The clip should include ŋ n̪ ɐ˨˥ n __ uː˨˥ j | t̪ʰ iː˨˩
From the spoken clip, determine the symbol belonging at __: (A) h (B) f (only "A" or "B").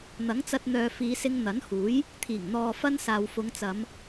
A